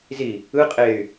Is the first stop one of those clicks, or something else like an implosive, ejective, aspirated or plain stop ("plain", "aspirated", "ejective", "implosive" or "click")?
ejective